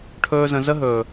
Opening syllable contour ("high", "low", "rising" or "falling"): high